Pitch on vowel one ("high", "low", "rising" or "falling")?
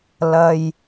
high